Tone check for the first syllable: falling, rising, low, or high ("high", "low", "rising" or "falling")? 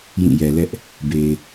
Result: falling